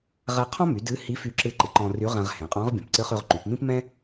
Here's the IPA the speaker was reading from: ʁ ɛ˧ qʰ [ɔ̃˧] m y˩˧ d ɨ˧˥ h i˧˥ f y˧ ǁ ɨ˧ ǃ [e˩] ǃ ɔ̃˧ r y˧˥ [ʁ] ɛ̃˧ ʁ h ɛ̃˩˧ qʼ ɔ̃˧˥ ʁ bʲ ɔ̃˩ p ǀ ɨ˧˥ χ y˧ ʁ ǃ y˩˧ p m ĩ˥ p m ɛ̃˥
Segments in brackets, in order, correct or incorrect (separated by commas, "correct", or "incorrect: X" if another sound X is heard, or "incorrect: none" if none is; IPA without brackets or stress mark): incorrect: ɔ̃˥, incorrect: ɨ˩, correct